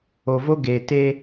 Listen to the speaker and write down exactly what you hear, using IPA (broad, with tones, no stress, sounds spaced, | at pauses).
o˧ v o˦ ɡ e˨ t e˧